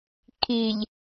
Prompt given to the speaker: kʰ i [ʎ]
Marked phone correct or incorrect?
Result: correct